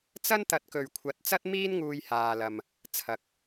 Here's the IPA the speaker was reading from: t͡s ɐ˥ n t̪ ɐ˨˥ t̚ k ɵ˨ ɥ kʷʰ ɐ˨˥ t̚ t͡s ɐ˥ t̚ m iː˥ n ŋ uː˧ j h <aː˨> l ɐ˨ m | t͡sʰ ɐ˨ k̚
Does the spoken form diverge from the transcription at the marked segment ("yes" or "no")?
no